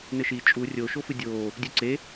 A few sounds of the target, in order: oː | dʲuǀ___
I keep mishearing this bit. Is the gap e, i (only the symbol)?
e